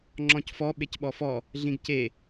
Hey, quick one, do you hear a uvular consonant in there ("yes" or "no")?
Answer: no